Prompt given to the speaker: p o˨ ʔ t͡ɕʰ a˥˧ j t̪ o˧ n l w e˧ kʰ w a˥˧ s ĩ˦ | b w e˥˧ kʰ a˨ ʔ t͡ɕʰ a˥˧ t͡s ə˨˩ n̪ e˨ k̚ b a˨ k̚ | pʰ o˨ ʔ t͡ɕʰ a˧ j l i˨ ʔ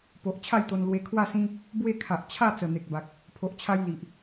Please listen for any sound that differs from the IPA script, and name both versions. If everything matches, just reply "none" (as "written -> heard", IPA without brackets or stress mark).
none